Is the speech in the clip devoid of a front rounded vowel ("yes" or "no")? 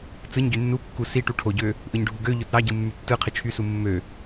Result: no